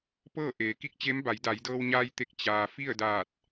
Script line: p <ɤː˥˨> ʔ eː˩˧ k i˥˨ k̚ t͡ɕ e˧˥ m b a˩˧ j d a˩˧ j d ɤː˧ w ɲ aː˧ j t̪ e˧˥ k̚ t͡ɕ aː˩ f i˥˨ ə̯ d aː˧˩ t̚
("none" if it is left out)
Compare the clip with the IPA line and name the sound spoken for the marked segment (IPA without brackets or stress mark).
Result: ɤː˥˨